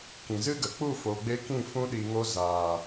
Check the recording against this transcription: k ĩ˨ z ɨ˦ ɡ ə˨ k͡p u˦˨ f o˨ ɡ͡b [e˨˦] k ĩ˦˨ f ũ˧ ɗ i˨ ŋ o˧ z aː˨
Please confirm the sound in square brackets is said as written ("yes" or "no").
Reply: no